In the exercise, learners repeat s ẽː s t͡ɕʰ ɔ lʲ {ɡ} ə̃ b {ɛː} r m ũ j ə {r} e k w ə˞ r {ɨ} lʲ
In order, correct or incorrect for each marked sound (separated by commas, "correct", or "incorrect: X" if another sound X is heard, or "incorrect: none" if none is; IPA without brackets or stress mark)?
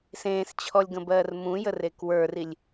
correct, incorrect: ɜː, correct, incorrect: i